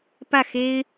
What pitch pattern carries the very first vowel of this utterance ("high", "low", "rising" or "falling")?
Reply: falling